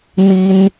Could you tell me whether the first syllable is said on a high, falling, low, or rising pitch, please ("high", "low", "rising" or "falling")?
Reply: high